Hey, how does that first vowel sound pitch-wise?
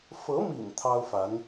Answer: rising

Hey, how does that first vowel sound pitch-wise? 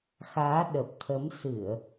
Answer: rising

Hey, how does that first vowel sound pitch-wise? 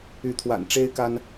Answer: rising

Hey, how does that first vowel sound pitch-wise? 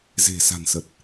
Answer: low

